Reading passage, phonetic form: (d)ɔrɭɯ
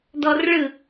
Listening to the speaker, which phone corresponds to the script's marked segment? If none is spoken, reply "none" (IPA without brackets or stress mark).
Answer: d